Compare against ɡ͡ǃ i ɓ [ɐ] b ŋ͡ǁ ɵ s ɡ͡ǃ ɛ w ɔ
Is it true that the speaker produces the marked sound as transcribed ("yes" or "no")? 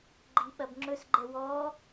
yes